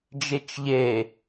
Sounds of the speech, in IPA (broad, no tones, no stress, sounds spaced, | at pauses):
d͡ʒ e t͡ʃ ʎ e